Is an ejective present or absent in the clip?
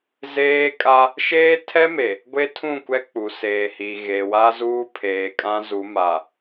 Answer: present